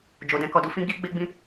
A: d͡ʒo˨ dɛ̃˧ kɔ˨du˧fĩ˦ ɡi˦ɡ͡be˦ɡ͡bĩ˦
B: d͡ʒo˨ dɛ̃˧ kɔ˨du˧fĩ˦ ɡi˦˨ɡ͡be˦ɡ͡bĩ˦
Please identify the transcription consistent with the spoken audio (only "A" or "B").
A